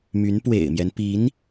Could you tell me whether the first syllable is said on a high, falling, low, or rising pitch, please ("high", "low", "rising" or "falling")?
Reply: rising